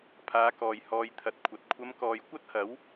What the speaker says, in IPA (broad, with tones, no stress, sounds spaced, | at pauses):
pʰ aː˨˧ k ɔː˨ j h ɔː˧ j t̪ʰ ɐ˨˥ t̚ kʷʰ ɐ˨ t̚ kʷʰ ɐ˨˧ m k ɔː˨ j kʷ ɐ˥ t̚ h ɐ˨˥ w